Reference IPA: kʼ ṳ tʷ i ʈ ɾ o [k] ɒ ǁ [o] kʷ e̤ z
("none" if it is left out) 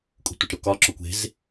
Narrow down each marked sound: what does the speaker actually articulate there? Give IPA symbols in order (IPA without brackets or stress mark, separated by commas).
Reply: k, o